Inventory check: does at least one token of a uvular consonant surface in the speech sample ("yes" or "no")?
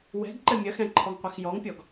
yes